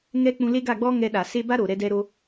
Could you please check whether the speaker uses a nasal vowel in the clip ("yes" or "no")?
yes